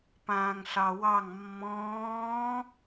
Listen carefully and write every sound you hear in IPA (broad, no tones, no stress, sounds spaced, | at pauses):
p ãː ŋ ɬ ɑ w ɑ ŋ mː ɔ̃ː